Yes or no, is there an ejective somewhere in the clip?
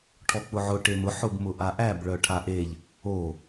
no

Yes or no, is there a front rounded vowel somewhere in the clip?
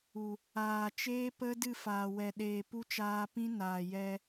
no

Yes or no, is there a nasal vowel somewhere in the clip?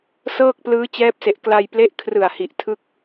no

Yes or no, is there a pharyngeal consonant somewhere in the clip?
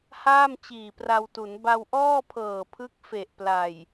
no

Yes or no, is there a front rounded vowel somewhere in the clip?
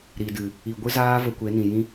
no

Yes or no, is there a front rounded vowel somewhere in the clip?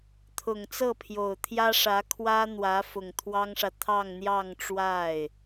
no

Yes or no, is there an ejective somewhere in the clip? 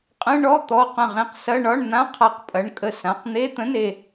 yes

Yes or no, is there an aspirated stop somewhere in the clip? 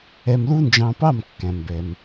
no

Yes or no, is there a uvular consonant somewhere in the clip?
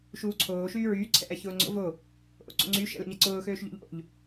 no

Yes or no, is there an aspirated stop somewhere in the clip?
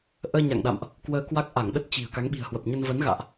no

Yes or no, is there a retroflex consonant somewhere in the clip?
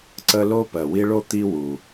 yes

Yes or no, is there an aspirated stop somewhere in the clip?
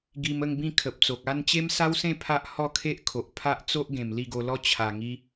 yes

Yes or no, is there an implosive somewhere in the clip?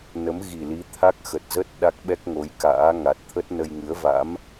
yes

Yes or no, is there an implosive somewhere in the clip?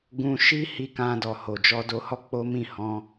no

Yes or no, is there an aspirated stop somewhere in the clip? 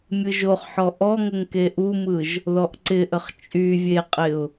no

